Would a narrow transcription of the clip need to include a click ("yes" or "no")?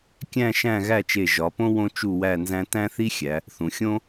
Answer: no